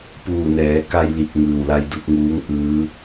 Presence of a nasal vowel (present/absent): absent